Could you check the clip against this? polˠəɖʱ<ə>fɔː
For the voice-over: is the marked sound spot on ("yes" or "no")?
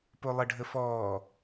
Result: yes